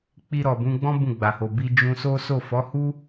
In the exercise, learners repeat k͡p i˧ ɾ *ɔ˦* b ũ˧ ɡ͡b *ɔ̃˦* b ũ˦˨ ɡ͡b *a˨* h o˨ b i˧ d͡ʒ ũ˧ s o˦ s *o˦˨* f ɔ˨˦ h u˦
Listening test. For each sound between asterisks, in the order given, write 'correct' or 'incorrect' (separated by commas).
incorrect, correct, correct, correct